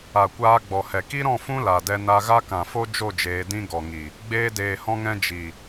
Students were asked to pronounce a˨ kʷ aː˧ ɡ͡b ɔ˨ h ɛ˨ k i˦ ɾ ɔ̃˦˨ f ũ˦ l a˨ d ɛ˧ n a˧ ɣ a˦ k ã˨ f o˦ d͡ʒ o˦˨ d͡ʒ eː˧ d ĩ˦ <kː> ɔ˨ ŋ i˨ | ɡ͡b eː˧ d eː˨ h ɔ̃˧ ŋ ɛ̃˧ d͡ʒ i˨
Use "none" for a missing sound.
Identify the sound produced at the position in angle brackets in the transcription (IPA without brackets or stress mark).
ɡ